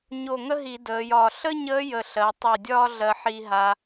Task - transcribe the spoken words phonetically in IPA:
ɲo˧˩ŋə˥ɦi˧˩˧ dəː˩˧jɒː˧˩ ɬə˥ɲəː˧˥ jə˧˩ɬɜ˩˧ tˤi˧˩dʲɒː˥ ɮɜ˧ħi˧ɦa˧

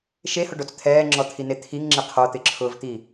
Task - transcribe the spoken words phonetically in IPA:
ʃehʊɖot͡s t̪ʰɛːŋ͡ǁɔt̪ʰine t̪ʰiŋŋ͡ǁɪ qʰot̪ɪǁʰʊːvt̪i

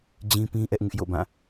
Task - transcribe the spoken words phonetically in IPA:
d͡ʑĩ˦pĩ˦ ʔɛ˦ʔŋɪ˦ʔjo̰˦˨bã˦˨

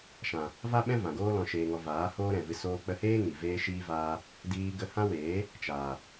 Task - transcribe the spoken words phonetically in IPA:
ʃã˨ | va˦ɓɛ̃˦ vã˨ɡoː˦ lɔ̃˨ʃeː˨ŋɔ˨ vaː˨˦ hoː˦ɾɛ̃˨vɨ˧ soː˧k͡pə˧heː˦ ŋi˨veː˦ʃiː˦vaː˦ | diː˧ ɡə˧hã˦weː˨˦ | t͡ʃaː˨

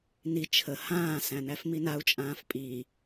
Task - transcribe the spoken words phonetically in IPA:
ni t͡ʃʰə hãː sæ̃næfminau̯ t͡ʃʼãːfpʼi

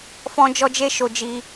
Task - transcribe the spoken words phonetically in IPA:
fɔ̃˦d͡ʒɔ˦d͡ʒe˦ ʃo˦d͡ʒi˦

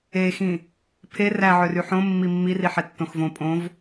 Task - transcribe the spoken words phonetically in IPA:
exĩ | pʰe ræʕøry ħõ mːimːiri ħɛtːõxvõ pʼõv

